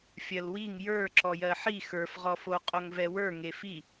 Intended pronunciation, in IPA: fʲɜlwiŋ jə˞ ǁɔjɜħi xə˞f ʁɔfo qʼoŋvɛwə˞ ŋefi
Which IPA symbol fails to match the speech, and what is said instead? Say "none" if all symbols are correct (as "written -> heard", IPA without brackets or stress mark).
none